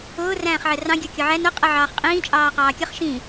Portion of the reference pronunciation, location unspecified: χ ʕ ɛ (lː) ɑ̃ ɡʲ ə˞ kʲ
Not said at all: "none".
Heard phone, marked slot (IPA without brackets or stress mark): r